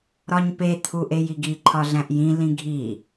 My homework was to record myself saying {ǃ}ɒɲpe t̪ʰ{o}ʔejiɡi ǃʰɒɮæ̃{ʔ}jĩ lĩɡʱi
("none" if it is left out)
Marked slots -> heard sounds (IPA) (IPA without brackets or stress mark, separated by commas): ɾ, u, ʔ